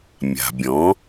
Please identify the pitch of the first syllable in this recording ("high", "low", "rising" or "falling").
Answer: low